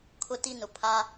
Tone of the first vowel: high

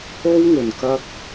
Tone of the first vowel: high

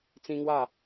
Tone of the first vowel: high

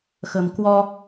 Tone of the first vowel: low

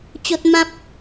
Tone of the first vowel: high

